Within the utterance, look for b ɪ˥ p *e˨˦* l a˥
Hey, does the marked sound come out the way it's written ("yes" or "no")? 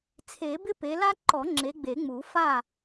yes